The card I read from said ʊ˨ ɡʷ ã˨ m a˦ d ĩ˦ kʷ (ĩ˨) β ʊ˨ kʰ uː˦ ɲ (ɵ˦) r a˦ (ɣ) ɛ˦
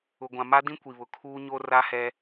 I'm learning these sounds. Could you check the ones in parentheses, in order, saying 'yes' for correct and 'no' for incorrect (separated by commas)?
no, no, no